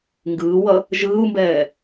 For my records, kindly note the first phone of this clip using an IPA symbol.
ŋ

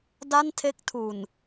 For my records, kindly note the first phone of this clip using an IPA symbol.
d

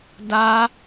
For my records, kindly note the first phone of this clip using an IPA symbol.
d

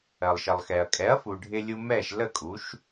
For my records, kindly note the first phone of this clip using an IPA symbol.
ɜ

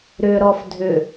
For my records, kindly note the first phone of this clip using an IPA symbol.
ɾ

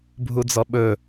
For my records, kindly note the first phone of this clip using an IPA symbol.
bʱ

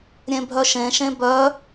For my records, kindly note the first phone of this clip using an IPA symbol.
ɾʲ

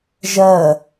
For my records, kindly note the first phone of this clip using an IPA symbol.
ʒ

